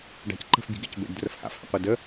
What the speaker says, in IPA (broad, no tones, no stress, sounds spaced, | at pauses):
ɖ a̤ c ǃ ə̤ f bʲ ṳ ɡ ḛ c b ḛ ɖ d r ə f h a̰ f h ə̰ qʷ ɛ d ə